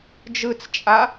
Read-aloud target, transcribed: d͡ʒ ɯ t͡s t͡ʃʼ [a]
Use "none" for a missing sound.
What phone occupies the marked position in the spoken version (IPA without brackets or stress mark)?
a